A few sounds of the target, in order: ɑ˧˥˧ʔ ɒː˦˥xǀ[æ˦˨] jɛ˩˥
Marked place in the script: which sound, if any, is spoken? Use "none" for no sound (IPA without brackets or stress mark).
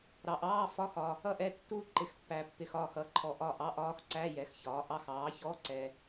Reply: æ˧˥˧